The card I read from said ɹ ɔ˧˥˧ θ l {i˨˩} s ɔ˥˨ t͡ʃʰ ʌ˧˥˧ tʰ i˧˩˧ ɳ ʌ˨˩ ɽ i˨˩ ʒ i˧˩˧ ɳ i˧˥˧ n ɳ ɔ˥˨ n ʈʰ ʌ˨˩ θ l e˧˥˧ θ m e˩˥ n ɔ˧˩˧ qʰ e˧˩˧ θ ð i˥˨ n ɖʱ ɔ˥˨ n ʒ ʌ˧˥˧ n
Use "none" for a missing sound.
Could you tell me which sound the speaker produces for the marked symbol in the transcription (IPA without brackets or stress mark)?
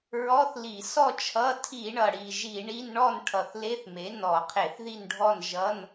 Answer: i˧˩˧